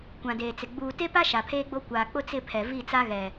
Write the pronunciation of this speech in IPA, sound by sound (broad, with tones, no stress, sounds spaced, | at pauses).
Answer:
kʷ ã˨ d eː˨ t͡s ɪ˨ ɡ͡b uː˨ t e˦ p a˦ ʃ a˨ pʰ eː˦ ɡ͡b o˦ kʷ aː˨ k͡p ʊ˦ t͡s ɪ˦˨ pʰ ɛ˨ v i˦˨ t͡s a˦ ɣ ɛ˨